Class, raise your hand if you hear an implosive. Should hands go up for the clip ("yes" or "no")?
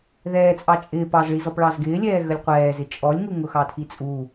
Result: no